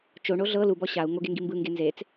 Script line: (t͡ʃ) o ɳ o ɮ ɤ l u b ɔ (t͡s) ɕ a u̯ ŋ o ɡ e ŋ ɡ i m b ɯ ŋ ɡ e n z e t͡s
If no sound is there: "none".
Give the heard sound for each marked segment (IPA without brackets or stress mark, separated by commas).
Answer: t͡ʃ, none